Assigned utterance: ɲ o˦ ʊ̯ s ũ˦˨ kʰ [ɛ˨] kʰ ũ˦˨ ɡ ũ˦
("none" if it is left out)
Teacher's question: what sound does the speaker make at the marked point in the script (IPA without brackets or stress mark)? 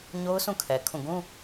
ɛ˨